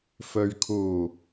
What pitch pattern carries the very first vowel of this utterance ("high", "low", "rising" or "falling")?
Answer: low